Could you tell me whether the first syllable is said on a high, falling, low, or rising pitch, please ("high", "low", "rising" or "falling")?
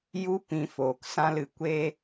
high